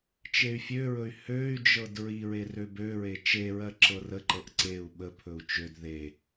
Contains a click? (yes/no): yes